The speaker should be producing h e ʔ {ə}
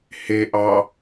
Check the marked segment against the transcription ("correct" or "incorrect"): incorrect